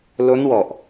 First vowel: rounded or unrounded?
rounded